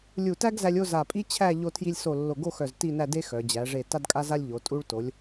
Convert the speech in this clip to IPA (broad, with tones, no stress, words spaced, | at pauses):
lʲu˧˩tæ˥ɡzæ˧lʲo˥˧ za˧˩pʼi˥t͡ɕʰæ˥˧ ʎo˧tʰji˧lʲso˧˩ lːo˧˩ɡo˥˧xœ˧˩z ti˥˧næ˥˧de˥ xœ˩˧ d͡ʑæ˩˧ʐe˧˩ ta˥dkʼa˥za˥lʲ ʎo˩˧ tʼu˧ɭto˩˧lʲ